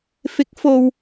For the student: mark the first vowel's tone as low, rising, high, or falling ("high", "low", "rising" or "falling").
rising